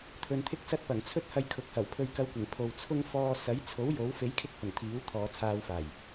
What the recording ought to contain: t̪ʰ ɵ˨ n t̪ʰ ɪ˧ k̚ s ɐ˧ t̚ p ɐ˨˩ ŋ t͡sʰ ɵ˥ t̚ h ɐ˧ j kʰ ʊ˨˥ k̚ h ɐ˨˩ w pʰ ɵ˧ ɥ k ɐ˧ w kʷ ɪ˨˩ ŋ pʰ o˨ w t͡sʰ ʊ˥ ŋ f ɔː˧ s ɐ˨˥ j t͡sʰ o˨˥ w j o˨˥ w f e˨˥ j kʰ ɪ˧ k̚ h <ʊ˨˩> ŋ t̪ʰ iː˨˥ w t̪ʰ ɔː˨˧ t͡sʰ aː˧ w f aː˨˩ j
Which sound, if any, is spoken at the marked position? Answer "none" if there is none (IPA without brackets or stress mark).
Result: ʊ˨˩